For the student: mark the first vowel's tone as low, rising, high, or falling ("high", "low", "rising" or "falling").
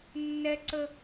high